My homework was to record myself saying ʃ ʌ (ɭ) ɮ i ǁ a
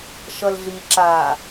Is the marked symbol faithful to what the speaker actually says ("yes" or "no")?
no